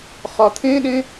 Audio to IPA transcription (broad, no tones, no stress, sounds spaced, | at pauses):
χ ɒ t̪ʰ ẽ ɗ ẽ